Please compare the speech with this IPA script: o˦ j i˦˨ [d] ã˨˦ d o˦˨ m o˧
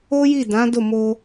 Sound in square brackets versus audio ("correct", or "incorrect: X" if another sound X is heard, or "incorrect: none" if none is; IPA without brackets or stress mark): correct